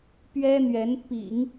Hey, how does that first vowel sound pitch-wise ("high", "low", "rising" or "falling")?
high